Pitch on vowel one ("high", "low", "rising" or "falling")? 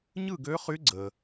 falling